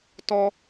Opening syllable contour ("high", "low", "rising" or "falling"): high